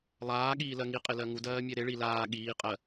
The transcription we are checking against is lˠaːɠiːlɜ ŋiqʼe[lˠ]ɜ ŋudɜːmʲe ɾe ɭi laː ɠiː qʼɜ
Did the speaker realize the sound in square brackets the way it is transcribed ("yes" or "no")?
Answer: no